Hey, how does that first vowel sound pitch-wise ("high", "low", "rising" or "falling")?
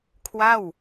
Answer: falling